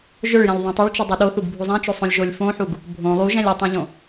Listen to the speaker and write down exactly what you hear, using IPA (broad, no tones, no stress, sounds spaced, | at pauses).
ʒ ɵ ɭ j ɛ̃ lʲ ðˤ ũ tˤ ɵ ɭ t͡ʃ u dˤ ɛ ɗ o θ u ɡ bʱ u zˤ ɛ̃ t͡ʃ o sˤ õ lʲ ʒ o lʲ f õ ħ u ɡ | bʱ õ lˠ u ʒ ɛ̃ lʲ ɵ tˤ ũ ʎ õ